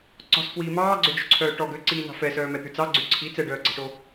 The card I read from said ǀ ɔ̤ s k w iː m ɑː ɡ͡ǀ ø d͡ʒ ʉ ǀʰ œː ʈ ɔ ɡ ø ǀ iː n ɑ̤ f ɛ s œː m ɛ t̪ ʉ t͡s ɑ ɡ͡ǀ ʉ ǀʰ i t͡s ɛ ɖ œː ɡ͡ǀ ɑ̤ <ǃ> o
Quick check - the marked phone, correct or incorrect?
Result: incorrect